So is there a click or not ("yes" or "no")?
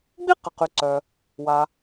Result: yes